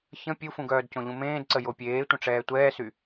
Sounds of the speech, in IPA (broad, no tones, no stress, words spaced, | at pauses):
çə̃ pʲufũɡœːd cõʎũmẽːdǀə jopʲeː tʷə̃ʈ͡ʂɛːtʷɛːsy